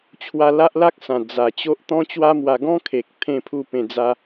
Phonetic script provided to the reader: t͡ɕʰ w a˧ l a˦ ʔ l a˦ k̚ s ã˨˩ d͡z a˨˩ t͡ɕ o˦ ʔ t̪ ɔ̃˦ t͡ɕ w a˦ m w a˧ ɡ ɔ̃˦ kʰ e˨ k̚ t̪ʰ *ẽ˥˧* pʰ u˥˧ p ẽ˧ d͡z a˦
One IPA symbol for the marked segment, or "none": ẽ˧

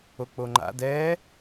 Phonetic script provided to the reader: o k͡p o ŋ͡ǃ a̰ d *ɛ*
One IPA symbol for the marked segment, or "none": ɛː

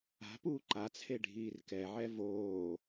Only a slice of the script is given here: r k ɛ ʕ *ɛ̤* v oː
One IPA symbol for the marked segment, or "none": ɛ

